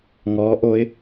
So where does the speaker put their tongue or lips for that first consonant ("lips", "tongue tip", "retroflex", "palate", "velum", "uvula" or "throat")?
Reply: velum